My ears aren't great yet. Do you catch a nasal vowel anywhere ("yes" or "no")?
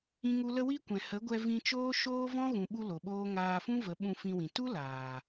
yes